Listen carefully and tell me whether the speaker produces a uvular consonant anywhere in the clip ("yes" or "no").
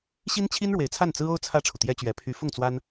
no